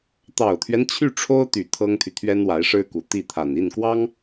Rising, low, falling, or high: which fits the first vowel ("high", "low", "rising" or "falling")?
low